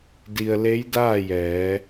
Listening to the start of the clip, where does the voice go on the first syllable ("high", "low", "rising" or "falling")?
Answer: low